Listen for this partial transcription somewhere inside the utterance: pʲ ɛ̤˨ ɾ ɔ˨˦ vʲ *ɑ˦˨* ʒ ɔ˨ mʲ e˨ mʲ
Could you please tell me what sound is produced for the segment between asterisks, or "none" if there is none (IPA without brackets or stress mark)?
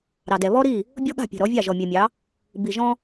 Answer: ɑ˦˨